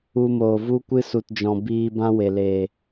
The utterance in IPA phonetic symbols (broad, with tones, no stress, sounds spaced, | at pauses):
u˧ m oː˨ v u˦ kʷ ɨ˦ s u˨ t d͡ʒ ɔ̃˨ b iː˧ b ã˦ w e˨ l e˨